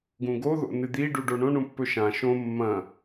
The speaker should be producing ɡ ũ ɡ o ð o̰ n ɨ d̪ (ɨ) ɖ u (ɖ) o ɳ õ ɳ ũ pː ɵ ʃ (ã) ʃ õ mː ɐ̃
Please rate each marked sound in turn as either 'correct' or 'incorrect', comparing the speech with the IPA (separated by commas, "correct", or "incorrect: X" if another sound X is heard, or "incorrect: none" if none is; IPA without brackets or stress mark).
incorrect: i, correct, correct